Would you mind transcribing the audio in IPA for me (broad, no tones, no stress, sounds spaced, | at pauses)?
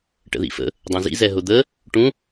ʈ ə̰ ð ḭ f ə̰ | dˤ õ z ḭ z ɛ ɦ ʊ d̪ ə | ʈ ũ